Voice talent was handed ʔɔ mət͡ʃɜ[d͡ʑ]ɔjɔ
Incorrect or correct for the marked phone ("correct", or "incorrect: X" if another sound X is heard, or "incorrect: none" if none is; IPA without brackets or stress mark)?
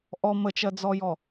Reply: incorrect: d͡z